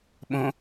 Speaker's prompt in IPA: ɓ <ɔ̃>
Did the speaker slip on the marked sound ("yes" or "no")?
yes